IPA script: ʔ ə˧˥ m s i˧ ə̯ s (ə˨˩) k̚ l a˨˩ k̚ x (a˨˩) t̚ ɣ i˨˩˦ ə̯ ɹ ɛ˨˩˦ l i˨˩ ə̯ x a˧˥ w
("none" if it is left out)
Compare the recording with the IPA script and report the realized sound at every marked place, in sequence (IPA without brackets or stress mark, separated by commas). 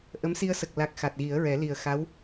ə˨˩, a˨˩